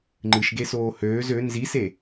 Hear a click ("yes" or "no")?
yes